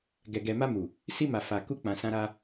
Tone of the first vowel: low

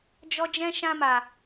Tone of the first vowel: high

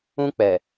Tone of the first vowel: high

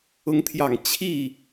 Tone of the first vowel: rising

